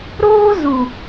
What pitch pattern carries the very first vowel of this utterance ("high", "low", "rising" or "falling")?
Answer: high